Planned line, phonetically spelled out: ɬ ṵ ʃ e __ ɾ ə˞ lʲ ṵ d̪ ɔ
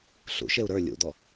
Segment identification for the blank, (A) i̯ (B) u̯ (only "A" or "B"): B